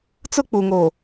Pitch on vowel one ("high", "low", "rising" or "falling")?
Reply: high